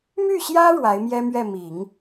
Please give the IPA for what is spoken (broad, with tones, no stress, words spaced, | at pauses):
my˥˩ɕjä˥ ɻwa˧˥ɪ̯mjɛ˥mɥɛ˥˩ mi˨˩˦ŋ